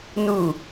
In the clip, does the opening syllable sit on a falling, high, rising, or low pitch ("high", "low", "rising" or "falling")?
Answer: falling